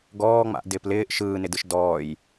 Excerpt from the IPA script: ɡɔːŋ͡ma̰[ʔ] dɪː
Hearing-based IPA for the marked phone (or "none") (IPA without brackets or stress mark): ʔ